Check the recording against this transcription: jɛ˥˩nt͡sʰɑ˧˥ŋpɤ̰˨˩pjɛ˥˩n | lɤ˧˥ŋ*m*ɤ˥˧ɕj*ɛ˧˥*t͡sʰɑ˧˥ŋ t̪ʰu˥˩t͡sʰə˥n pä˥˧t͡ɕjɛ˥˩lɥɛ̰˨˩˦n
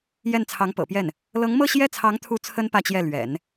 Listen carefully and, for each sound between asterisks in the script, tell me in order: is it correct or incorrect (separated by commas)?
correct, incorrect